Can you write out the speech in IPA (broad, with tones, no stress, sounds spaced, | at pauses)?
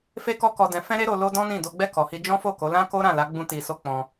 f e˦ k ɔ˦ k ɔ˧ d ɛ̃˧ f ɛ̃˦ ɾ e˦ ɾ o˧ l o˦ d ɔ̃˦ n ĩ˦˨ d o˧ ɡ͡b ɛ˦ k ɔ˧ h i˦ d͡ʒ ɔ̃˦ f o˦˨ k o˨˦ l ã˦ k o˦ ɾ ã˦˨ l a˨˦ ɡ͡b ũ˦ t i˧ s o˦ k͡p ɔ̃˧